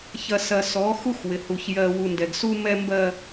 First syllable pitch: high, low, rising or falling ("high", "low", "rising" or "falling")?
low